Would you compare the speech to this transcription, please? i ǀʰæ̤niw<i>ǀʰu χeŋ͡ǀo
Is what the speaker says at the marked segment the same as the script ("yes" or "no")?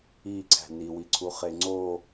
yes